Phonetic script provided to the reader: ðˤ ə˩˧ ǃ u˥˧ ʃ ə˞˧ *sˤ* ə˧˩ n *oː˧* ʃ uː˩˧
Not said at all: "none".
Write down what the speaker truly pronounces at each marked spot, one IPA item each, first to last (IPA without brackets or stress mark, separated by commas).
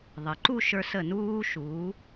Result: s, uː˧